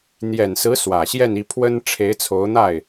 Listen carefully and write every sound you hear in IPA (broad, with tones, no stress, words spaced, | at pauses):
n̪jɛ˨˩nsɹ̩˧˥ swä˨˩ɕjɛ˥˧ni˥˩pʰwə˥n ʈ͡ʂʰe˧˥ɪ̯t͡sʰo˧˥ʊ̯n̪a˥˩ɪ̯